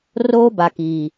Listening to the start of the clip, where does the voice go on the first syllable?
high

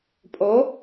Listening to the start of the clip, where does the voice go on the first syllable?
rising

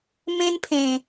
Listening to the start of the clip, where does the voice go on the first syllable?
high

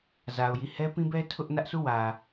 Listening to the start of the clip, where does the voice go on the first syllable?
low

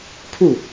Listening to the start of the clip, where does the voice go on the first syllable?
falling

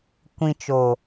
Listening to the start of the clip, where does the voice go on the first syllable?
low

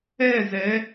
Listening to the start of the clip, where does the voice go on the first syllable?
falling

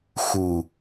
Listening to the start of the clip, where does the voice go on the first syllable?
low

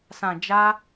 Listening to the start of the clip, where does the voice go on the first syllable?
low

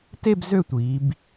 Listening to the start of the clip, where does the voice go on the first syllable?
falling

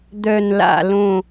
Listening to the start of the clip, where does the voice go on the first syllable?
low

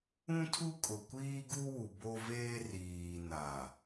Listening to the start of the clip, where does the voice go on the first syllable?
high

